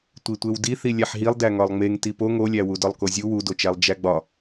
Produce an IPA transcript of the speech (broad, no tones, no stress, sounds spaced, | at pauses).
tʷ i tʷ e w d i θ i lʲ æ ħ ɦ i lˠ d æ ŋ ɒ lˠ ŋ͡m e ŋ t i p o ŋ o lʲ æ w u d ɒ lˠ k o zʲ u w u d o t͡ʃ æ lˠ d͡ʒ æ ɡ͡b ɒ